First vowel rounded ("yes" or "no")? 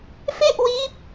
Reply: no